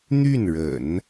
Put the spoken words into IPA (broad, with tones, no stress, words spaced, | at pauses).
n̪y˥˩nɻə̰˨˩˦n